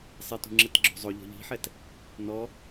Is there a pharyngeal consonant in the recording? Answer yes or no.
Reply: yes